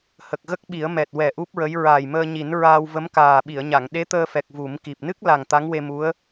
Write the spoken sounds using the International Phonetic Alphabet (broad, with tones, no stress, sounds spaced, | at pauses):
h ə˨˩ k̚ ɣ ə˦˥ k̚ ɓ i˨˩˦ ə̯ m ɛ˨˩ t̚ w ɛ˨˩ ʔ u˦˥ p̚ ɹ ə˧˥ j ɹ aː˨˩ j m əː˧ ɲ i˨˩˦ n ɹ aː˧ w v ə˧˥ m k aː˨˩ ɓ i˨˩˨ ə̯ ɲ a˨˩˨ ŋ ɗ e˧˥ t̪ əː˧ f ɛ˨˩ k̚ v u˨˩˦ m k i˨˩ p̚ n ɨ˦˥ k̚ l a˨˩ ŋ t̪ a˧˥ ŋ w e˧ m u˧˥ ə̯